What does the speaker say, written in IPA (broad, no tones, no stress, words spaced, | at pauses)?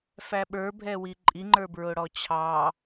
fæɓə˞ bʱɛwiǃʼiŋ͡ǃə˞ bɹʊɽɔt͡ɕʰɑ